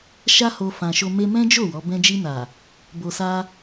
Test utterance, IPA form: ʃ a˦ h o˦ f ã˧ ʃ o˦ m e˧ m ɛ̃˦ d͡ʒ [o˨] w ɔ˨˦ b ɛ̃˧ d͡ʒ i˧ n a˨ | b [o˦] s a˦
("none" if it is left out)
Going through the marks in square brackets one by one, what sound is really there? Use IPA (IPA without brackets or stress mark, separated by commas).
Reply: o˦˨, o˧